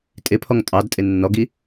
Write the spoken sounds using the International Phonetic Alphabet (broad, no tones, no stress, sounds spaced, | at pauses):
tʼ ɪ pʰ ɔ ŋ tʼ ɑ d tʼ ɪ nː ɔ ɡ i